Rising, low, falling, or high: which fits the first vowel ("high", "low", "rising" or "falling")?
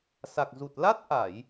low